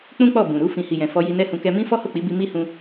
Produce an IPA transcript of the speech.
k͡p ũ˦ k͡p ɔ˦˨ b ũ˨ ɾ u˧ f ĩ˨ h i˨ j ɛ̃˨ f ɔ˧ j i˧ n ɛ˦ h ũ˧ k ɛ˧ m ĩ˦ f ɔ˦ h o˦˨ k͡p i˨˦ b i˧ m i˦ h ũ˧

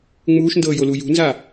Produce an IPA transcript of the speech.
ŋ͡m uː ʃ n d ɤː j o l u j ṳ n z a

